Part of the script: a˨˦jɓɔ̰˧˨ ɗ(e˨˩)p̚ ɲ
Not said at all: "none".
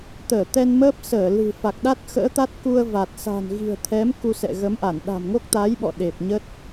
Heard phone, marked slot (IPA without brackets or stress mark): e˨˩